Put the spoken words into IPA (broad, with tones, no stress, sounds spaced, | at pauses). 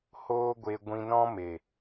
h oː˦ ɡʷ e˧ ɡʷ ĩ˧ n ɔ̃˦ m e˨